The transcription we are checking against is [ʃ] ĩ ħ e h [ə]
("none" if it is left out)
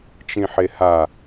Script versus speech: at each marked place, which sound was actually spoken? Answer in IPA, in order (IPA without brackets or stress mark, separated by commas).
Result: t͡ʃ, a